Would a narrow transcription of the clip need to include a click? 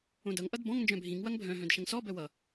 no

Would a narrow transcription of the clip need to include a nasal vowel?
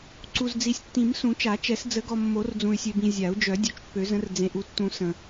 yes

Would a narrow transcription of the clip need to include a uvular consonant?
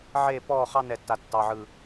yes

